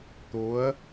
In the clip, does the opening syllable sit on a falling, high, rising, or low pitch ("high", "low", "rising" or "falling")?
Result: rising